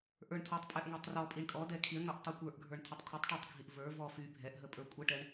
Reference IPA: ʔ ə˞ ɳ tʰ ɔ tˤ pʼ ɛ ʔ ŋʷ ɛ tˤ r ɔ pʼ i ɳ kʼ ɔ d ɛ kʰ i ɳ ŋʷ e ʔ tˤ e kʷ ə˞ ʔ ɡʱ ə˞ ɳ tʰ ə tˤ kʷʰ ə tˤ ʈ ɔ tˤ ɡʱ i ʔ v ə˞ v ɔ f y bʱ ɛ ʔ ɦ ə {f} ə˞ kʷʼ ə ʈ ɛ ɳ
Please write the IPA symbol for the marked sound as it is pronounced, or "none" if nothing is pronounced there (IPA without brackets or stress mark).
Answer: pʼ